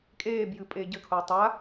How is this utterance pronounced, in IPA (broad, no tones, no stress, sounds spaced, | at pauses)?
kʼ eː b j ɨ pʼ eː ɟ ɘ kʰ o tˤ a